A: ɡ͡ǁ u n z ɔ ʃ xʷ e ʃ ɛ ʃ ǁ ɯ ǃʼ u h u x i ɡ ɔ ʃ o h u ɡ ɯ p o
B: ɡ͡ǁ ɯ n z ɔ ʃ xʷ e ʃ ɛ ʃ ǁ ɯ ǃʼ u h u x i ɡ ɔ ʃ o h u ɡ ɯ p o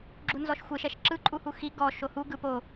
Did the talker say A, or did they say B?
A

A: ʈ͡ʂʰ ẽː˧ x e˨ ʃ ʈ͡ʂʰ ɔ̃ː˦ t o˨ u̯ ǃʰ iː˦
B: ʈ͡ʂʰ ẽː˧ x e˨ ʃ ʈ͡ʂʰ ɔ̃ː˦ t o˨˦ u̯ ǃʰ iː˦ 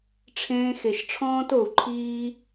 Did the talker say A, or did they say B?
A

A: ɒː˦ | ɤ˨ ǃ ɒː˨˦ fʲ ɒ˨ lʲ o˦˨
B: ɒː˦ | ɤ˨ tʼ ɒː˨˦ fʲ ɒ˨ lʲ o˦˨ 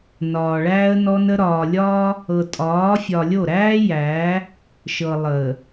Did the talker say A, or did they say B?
B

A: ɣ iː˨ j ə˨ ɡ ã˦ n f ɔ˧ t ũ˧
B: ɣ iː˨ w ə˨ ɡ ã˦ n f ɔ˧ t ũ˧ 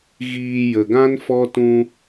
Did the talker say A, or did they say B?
A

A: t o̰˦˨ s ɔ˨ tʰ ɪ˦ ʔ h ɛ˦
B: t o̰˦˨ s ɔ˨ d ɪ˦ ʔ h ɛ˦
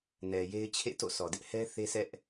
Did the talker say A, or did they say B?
B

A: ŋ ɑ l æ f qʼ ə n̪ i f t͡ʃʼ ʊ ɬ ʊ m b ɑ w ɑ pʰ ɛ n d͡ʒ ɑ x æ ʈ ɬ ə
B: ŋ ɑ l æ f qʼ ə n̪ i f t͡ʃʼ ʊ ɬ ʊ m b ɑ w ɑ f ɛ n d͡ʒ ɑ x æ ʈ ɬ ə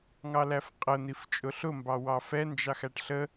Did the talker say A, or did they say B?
B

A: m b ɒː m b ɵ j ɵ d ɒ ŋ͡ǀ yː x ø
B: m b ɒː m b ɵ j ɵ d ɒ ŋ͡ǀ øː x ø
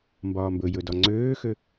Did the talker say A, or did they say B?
B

